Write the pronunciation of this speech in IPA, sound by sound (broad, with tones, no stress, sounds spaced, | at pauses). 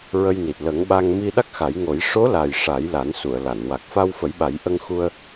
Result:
ɹ ə˧ j n i˨˩ t̚ l ə˨˩˦ ŋ ɓ a˧ ŋ m i˧ ɗ a˦˥ k̚ x a˨˩˦ j ŋ o˨˩˦ j ʂ o˧˥ l a˨˩ j ʂ a˨˩˦ j l a˨˩˦ n s u˨˩˨ ə̯ l a˨˩˨ n w a˨˩ k̚ f a˧ w f ə˨˩˦ j ɓ a˨˩˦ j ʔ ə˧ ŋ x u˧ ə̯